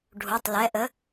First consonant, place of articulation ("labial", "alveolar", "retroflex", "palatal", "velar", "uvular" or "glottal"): retroflex